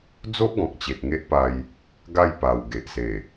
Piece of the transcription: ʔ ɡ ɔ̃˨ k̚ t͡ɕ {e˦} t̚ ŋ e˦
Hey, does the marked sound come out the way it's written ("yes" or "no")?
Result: no